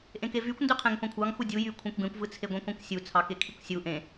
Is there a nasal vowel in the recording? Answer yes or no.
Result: yes